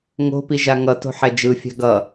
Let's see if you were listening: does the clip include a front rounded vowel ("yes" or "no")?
no